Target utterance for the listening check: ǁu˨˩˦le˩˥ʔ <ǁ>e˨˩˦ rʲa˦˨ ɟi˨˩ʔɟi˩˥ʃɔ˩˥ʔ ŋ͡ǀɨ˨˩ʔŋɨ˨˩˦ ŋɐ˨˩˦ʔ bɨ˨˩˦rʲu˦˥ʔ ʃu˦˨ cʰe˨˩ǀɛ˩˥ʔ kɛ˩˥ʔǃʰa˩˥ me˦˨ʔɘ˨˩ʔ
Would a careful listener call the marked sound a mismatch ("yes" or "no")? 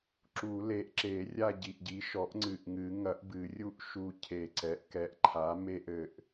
no